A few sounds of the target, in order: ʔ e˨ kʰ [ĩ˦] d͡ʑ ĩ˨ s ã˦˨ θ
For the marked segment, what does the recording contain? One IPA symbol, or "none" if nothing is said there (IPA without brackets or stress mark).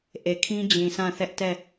ĩ˦